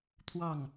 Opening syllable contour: falling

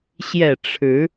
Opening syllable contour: low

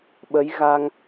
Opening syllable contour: rising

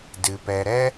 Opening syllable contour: low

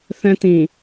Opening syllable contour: high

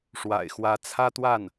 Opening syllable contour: low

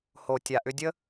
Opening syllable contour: low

